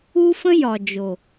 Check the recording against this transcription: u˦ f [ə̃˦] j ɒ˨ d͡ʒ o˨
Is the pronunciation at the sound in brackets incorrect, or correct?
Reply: correct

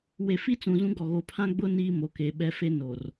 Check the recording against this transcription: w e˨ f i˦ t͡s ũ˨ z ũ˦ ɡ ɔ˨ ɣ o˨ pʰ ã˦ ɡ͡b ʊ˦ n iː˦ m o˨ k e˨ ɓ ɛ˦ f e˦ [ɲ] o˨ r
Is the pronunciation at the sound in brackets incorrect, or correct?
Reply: incorrect: n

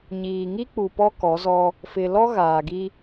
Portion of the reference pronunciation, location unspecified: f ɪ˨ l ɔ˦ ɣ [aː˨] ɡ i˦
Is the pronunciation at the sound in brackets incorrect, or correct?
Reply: correct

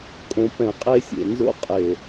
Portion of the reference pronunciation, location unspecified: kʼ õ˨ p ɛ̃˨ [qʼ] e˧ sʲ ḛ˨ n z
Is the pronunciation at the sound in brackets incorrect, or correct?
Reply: correct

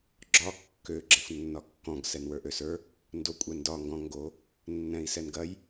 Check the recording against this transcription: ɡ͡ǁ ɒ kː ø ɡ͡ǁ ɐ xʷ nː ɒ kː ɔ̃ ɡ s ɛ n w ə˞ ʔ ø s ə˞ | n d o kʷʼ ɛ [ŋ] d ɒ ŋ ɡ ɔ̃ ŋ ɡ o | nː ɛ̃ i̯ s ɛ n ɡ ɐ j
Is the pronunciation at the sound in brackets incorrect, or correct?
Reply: incorrect: n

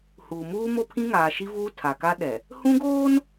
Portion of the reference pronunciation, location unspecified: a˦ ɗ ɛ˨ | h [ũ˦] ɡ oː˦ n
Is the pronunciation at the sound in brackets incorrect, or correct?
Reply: correct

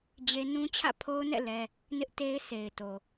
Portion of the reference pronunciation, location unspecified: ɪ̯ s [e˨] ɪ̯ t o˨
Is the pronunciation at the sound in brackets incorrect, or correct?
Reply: correct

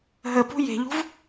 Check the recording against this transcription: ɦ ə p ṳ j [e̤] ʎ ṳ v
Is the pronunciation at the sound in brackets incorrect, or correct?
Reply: correct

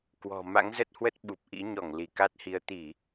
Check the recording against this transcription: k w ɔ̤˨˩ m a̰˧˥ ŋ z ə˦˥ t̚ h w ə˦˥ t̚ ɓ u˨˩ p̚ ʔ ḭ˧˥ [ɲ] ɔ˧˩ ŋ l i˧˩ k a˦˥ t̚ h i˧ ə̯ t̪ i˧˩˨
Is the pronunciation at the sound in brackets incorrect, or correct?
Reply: correct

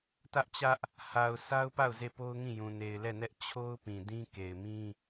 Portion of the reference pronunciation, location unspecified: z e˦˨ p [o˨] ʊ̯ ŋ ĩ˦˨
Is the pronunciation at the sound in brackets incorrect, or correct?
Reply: incorrect: o˦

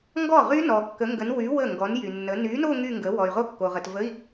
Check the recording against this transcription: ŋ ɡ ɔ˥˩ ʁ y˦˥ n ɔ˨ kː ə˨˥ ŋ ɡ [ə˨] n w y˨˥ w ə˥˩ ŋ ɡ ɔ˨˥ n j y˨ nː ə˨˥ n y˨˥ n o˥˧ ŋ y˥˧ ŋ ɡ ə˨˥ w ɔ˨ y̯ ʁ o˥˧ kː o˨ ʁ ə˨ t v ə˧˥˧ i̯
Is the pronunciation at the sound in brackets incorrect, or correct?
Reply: incorrect: ə˨˥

